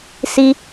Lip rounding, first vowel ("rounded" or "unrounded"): unrounded